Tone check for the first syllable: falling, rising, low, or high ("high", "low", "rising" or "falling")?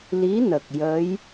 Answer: rising